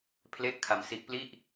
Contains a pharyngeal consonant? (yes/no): no